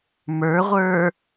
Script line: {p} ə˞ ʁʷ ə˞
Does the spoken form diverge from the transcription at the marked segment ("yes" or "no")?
yes